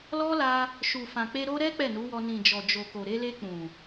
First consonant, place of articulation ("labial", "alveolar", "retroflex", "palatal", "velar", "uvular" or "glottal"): alveolar